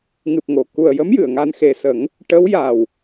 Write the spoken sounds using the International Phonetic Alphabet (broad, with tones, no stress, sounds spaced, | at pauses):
ŋ ɨ˨˩ p̚ ŋ o˨˩˨ k u˨˩ ə̯ j ə˧˥ m j ɨ˨˩˨ ə̯ ŋ a˧ n x e˨˩ s ə˨˩˦ ŋ | ʈ ə˧˥ w j a˨˩ w